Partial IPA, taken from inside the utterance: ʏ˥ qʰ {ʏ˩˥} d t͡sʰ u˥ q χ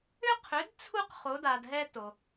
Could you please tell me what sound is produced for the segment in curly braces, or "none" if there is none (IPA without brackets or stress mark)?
ʏ˩˥